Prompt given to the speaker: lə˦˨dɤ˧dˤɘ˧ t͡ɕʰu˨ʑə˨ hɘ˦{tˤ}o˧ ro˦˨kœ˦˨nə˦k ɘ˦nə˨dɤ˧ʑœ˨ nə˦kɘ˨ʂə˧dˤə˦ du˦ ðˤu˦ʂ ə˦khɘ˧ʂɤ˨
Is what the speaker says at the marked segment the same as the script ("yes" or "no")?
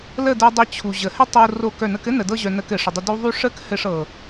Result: yes